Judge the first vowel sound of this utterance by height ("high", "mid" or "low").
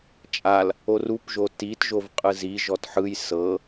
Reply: low